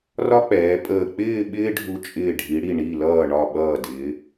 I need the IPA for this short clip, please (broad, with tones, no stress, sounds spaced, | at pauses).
r ɒ˥ k͡p ɛː˩˧ pʼ əː˧˩ k͡p ɪː˥˧ ɓ ɪː˥ ɖʱ u˧ t͡ʃʼ ɪː˧˩ ɖʱ i˩˧ ɽ i˧˩ ɳ i˧˩ l ʌː˧˩ ɳ ɒ˧˩ ɓ ʌː˧˩ d ɪː˩˧